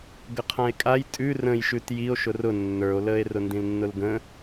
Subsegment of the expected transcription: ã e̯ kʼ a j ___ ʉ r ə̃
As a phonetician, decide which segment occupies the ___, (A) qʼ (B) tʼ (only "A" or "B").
B